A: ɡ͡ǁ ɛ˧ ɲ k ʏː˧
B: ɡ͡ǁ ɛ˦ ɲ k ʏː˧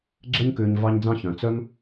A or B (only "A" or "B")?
B